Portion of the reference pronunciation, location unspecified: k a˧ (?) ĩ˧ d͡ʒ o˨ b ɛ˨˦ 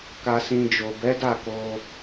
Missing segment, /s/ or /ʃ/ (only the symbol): s